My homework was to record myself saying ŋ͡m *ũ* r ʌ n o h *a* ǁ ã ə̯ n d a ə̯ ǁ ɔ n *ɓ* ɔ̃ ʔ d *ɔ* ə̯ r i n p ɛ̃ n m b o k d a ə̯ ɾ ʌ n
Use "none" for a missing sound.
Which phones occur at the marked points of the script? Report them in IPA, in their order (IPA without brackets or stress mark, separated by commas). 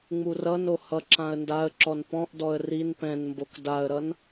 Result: u, ʌ, p, ɔ